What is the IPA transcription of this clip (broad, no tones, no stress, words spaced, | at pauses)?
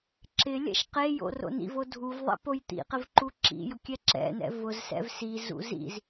ǁɪ lʲɛ̰ʃqejo̰ ro̰nḭvo dʱuvðˤɛ̰ pojt̪ḭqɪv ǃuǁḭjʊ kʲɛǁɛ̰nɛ̰ vʊzsɛ̰v sizṵ zḭz